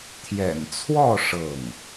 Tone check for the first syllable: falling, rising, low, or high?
low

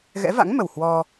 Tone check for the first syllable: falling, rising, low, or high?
rising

